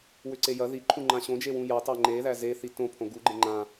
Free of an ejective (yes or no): yes